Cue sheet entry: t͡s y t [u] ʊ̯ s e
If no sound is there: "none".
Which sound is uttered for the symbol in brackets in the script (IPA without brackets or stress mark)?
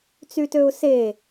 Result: ø